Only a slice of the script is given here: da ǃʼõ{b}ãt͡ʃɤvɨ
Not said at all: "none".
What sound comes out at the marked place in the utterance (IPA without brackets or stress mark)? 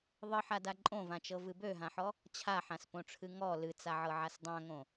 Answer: v